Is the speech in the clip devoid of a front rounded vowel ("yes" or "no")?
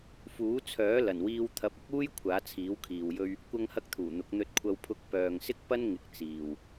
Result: no